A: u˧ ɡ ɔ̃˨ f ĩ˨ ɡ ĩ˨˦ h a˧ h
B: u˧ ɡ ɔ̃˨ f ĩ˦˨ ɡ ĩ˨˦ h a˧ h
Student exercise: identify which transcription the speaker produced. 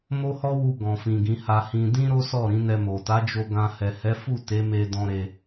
A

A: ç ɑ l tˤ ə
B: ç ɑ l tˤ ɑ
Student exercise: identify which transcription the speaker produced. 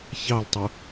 A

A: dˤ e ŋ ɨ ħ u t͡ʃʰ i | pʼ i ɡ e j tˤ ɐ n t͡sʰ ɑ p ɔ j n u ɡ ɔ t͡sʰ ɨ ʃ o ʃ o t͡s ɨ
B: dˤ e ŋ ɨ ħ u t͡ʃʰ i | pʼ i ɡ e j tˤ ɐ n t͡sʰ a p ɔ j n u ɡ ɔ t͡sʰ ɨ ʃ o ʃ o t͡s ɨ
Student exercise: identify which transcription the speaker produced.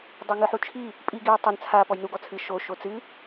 B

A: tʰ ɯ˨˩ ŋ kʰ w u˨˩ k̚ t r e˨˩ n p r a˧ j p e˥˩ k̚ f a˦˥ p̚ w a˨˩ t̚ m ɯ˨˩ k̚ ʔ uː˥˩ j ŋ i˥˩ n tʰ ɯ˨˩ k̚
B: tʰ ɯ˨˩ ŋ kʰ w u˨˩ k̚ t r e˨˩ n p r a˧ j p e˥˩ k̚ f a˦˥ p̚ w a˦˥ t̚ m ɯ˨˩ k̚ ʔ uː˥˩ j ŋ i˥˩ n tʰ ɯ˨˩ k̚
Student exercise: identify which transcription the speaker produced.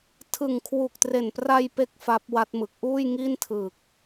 B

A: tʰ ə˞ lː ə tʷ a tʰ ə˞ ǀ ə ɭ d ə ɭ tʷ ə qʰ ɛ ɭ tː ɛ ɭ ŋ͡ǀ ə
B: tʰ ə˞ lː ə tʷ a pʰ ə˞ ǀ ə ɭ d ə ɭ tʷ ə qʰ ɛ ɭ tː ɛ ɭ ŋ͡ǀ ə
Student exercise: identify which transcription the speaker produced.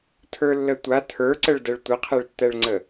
A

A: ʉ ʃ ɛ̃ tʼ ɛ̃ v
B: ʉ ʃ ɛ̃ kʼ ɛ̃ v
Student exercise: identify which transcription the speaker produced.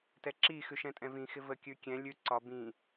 A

